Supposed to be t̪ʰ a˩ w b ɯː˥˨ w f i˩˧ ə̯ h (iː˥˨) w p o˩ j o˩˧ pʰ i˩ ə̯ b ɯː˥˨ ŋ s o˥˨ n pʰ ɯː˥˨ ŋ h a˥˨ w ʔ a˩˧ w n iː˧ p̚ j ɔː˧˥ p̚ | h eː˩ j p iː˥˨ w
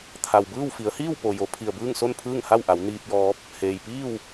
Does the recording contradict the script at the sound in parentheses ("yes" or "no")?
no